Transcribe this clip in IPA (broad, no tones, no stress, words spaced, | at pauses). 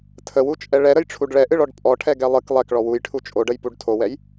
tʰəwut͡ʃʼɛ ɭɛɾəjʈ͡ʂʰuɖ ɭɛʔɨɭɔɖ pʼɔʈʰɛɡɛ lˠɨk lˠɛkɭɔ wujʈʰu t͡ʃʼoɖəjpuɖ tʰowɛj